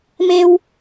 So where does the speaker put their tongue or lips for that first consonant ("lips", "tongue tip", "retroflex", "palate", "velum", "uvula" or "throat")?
lips